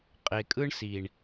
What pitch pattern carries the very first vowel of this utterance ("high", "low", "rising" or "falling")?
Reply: low